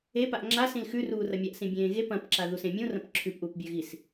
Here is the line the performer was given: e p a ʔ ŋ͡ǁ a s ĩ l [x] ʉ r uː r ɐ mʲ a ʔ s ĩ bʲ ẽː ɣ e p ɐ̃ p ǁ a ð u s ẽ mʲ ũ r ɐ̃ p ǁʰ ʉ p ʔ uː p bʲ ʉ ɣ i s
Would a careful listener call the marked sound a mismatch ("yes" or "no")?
no